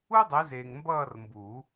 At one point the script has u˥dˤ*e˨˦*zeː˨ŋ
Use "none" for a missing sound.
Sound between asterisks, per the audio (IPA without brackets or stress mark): e˨˦